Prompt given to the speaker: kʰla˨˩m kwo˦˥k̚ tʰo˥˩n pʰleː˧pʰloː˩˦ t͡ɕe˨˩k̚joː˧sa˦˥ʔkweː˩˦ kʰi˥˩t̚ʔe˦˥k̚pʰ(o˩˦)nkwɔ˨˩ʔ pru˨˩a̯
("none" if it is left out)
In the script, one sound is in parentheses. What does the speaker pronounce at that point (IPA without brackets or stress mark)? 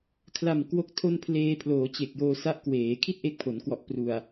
o˩˦